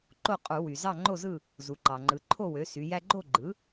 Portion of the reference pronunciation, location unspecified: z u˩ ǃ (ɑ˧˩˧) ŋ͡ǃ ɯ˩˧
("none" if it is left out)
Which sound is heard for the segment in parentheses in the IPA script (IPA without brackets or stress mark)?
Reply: ɑ˩